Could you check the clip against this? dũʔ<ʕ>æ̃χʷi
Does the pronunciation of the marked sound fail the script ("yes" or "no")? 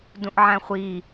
no